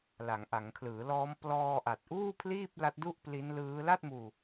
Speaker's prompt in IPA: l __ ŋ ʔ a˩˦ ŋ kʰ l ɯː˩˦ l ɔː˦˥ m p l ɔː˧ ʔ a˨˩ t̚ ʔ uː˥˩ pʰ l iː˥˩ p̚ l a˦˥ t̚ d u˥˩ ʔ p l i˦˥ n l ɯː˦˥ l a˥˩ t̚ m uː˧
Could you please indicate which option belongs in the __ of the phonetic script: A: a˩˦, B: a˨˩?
A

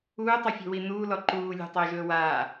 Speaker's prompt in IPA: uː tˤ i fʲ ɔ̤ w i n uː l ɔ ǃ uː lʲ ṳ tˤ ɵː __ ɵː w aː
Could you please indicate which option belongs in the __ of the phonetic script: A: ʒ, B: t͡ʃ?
A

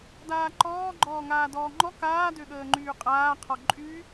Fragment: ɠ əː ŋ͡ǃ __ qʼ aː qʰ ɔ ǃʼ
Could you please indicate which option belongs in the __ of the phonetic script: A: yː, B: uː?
A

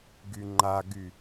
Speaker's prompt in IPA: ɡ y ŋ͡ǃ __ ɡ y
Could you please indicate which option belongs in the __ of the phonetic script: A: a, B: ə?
A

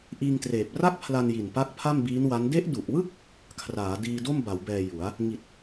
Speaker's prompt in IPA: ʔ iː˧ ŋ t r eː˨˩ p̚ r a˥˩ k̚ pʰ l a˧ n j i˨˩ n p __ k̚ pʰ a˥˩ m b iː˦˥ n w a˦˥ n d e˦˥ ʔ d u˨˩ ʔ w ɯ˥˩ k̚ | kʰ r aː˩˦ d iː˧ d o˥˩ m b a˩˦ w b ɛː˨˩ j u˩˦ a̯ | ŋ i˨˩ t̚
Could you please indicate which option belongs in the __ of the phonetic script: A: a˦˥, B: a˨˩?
A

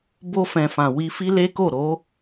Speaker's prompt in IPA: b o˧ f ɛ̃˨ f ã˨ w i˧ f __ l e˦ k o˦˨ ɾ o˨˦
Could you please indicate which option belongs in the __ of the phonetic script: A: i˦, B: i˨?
A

